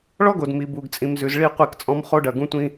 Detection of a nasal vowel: present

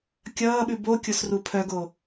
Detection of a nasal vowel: absent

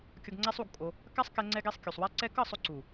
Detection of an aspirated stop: absent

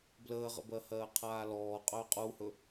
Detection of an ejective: present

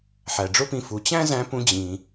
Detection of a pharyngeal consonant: present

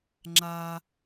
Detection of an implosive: absent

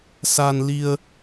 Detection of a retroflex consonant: absent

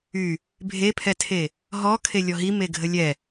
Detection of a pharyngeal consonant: absent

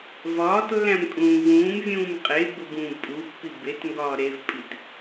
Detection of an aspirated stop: absent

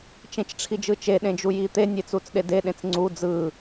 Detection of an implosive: present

